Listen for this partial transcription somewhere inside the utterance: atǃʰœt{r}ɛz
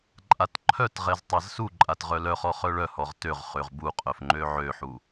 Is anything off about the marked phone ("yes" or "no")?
yes